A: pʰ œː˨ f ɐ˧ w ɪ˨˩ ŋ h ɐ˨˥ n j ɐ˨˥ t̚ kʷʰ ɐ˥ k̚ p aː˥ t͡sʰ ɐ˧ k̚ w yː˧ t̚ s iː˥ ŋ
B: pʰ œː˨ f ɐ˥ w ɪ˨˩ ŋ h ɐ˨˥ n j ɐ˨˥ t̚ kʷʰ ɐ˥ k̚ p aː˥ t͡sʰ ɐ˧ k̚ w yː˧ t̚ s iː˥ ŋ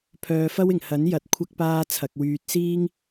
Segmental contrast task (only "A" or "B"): B